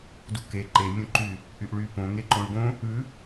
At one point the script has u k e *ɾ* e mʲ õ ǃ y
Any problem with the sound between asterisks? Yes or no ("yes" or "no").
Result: yes